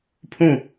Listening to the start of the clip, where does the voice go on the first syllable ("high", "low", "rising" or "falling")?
falling